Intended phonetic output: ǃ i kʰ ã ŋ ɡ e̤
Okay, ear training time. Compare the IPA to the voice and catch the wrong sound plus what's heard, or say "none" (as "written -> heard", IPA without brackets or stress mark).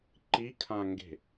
none